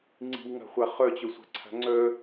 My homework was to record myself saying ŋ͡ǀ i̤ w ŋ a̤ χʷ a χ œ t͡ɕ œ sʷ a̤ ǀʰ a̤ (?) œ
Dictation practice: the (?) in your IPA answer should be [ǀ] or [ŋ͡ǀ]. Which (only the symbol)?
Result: ŋ͡ǀ